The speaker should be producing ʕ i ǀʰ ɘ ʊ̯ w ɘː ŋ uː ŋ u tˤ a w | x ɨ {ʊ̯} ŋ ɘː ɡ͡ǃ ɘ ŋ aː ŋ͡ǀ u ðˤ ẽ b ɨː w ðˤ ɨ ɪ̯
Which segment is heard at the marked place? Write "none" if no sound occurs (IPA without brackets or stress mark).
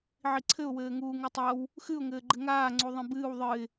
ʊ̯